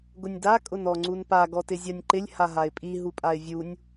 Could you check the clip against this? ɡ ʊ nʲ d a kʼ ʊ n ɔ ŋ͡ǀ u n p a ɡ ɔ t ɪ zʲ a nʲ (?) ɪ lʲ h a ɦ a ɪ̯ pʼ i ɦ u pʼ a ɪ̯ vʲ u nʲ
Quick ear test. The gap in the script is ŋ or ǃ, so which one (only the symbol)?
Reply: ǃ